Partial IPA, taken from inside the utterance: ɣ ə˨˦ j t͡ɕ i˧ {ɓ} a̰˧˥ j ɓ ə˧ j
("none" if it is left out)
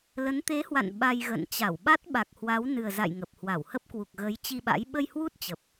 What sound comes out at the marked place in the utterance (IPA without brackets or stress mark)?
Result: ɓ